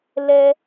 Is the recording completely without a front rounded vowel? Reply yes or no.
yes